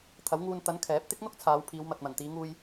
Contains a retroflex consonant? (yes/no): no